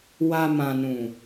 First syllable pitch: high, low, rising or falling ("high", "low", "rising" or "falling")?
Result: low